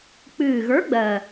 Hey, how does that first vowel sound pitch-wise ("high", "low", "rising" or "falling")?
low